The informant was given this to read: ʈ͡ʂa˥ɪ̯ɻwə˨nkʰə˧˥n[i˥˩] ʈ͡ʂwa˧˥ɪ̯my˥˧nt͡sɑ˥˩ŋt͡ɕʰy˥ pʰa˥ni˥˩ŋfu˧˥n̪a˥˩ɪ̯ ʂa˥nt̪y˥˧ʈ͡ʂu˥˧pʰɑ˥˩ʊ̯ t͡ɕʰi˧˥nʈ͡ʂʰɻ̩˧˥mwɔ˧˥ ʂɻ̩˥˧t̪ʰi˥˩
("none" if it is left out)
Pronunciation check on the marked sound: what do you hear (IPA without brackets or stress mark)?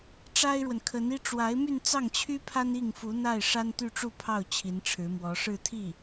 i˥